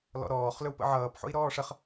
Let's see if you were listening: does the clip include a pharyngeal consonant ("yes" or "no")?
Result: yes